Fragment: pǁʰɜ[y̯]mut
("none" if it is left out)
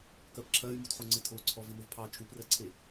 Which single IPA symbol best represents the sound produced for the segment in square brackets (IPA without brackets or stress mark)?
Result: y̯